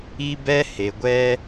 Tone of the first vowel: high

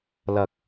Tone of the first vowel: low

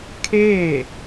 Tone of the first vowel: falling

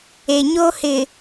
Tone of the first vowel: low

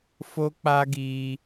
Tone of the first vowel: high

